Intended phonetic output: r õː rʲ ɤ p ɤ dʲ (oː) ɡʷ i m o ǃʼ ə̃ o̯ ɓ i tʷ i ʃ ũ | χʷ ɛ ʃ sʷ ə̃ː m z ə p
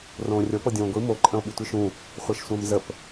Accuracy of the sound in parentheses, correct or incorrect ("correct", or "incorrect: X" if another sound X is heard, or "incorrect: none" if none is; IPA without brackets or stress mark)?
incorrect: õː